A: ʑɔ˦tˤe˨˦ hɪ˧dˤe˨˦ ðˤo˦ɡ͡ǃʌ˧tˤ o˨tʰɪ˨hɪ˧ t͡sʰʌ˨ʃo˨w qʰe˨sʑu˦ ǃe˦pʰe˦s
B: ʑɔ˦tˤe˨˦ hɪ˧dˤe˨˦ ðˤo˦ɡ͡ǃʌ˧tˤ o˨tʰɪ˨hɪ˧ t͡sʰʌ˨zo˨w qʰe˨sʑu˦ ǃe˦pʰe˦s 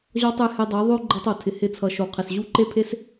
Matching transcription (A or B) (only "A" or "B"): A